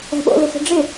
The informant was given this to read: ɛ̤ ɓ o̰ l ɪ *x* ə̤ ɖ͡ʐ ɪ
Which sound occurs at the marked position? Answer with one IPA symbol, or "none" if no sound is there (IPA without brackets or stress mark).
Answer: x